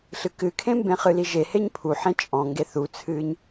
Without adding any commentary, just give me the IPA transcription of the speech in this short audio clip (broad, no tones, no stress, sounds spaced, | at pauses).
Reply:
ɬ ɨ k ɨ kʰ ẽ m b ẽ χ ɨ l i ʒ e h e ɲ pʰ u ħ ẽ t͡ʃʼ ɔ̃ ŋ ɡ e θ u t͡sʰ ɨː ɲ